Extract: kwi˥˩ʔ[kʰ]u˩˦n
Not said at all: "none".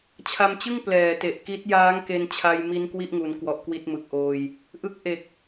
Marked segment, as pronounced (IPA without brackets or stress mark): ŋ